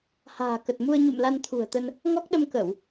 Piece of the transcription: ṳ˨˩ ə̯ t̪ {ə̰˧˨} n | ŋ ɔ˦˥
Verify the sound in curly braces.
incorrect: ə˧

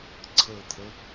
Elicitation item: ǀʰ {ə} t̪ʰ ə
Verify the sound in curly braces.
correct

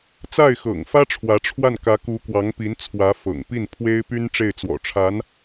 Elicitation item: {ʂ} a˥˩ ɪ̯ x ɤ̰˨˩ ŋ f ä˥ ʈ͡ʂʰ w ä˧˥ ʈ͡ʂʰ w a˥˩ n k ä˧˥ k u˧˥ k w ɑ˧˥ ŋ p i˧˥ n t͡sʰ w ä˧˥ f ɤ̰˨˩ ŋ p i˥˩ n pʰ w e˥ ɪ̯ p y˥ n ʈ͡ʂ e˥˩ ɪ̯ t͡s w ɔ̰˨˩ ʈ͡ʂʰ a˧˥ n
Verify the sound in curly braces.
incorrect: t͡s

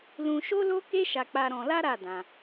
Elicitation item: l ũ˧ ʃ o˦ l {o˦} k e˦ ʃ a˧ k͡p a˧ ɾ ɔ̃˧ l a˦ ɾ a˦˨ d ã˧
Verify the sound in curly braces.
correct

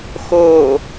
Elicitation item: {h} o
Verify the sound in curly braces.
incorrect: x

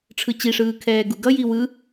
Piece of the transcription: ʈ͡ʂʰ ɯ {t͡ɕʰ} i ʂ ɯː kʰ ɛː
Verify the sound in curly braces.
incorrect: t͡ɕ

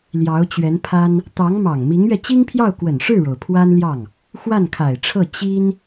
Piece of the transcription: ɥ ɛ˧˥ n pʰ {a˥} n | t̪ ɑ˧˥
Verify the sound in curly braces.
correct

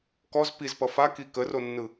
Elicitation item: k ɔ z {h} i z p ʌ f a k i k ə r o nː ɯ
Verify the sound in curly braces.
incorrect: p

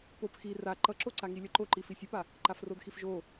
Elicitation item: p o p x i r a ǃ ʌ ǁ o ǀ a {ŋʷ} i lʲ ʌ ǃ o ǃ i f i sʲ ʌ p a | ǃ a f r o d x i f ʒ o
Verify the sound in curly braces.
incorrect: ŋ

